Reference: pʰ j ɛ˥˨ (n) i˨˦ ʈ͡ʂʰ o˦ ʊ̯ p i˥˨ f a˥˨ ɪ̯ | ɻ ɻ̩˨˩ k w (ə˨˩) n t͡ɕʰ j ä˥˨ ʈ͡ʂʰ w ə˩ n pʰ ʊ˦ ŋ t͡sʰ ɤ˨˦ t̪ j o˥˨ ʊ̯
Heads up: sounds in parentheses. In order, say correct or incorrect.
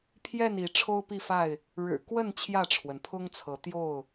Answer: correct, incorrect

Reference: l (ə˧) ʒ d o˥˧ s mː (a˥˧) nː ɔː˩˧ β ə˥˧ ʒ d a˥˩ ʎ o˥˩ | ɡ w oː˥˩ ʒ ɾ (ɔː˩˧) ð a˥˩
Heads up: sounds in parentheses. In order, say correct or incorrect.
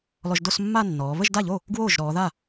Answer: incorrect, correct, correct

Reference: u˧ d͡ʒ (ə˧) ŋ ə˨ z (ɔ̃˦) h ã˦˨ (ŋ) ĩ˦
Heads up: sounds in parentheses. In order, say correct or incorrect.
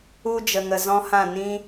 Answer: incorrect, correct, incorrect

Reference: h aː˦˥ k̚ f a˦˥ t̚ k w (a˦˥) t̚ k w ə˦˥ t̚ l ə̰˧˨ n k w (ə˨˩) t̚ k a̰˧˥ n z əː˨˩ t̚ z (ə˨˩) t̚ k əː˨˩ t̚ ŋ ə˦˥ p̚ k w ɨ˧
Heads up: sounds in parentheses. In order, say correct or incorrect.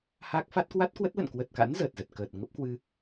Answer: correct, correct, correct

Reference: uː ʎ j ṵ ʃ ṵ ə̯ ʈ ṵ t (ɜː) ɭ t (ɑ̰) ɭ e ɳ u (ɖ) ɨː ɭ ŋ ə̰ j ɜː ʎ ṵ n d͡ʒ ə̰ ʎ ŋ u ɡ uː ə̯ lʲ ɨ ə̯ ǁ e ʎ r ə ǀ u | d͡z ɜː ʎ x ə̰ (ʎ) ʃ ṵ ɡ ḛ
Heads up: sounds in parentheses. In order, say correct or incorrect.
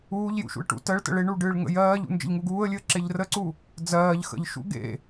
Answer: incorrect, incorrect, correct, correct

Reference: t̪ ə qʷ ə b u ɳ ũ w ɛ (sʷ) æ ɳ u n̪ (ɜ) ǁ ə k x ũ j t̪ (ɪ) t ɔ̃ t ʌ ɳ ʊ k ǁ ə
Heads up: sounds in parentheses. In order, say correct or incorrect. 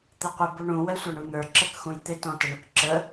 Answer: correct, incorrect, correct

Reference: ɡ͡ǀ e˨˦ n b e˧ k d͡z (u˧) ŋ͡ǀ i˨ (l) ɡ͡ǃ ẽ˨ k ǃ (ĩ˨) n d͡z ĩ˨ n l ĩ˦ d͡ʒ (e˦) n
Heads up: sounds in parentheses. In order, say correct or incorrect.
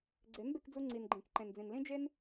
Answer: correct, incorrect, incorrect, correct

